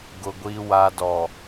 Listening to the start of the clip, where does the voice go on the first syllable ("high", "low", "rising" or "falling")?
low